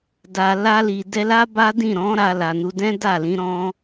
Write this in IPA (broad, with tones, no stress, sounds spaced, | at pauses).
d a˨ l a˧ l i˨ d ɛ˧ l a˦ b a˦ d ĩ˦˨ ɾ ɔ̃˨˦ ɾ a˧ l a˨ n u˧ d ɛ̃˦ d a˦˨ l ĩ˧ ɾ ɔ̃˦